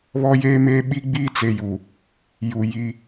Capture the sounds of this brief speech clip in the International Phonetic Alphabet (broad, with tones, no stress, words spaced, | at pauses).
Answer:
βɔ˦jeː˦meː˦ ɓi˦ɡ͡biː˦t͡se˨ju˨ | ju˨ ji˦